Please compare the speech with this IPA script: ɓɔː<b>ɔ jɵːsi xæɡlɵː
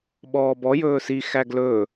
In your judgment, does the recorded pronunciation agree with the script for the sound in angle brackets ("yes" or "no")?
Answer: yes